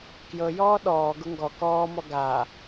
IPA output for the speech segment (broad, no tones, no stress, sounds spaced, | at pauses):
k j ɤ j ɔː ɗ ɔː ɡ ʊ ŋ ɡ ɔ k ɔː m ɔ ɡ a